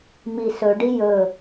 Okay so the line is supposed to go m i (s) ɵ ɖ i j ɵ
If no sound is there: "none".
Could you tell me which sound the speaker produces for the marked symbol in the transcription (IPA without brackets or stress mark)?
s